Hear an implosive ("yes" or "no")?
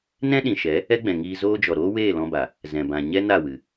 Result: yes